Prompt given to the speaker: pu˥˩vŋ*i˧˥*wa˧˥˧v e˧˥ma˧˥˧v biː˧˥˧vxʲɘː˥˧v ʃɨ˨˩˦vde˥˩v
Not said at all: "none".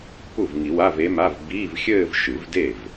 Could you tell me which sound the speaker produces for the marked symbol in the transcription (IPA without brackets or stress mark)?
i˨˩˦